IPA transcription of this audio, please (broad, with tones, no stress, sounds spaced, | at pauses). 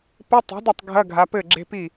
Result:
p ɘ˧˥˧ tˤ i̤˩˥ d ɐ˥˩ tˤ ɡʱ ɐ˧˥˧ ɡʱ a˩˧ p ɘ˥˩ ɡ͡ǁ e̤˧˥˧ p i˥˩